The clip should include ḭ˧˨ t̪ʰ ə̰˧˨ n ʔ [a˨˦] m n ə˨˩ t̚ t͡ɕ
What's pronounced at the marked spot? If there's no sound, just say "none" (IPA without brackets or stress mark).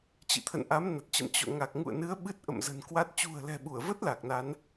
a˨˦